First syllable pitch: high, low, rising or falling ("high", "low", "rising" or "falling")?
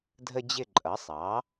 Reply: high